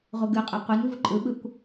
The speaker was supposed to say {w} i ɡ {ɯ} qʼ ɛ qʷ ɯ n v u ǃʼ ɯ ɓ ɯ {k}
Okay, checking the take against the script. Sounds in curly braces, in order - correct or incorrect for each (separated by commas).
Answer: incorrect, correct, incorrect